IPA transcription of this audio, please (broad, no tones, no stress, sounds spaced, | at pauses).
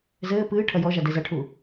z ɘː p ɨː ʈʰ ɐ j ɔ ʒ a d ɛ z ɐ ʈʰ u